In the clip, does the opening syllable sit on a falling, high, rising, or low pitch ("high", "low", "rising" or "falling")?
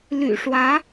low